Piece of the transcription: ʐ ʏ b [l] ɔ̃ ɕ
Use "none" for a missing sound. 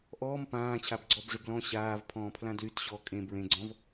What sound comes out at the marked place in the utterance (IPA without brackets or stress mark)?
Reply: l